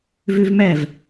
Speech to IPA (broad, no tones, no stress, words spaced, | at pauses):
vøvmæv